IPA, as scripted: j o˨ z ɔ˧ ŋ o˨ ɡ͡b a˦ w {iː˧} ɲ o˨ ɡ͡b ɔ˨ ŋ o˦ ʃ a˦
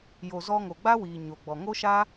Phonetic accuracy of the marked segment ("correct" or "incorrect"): incorrect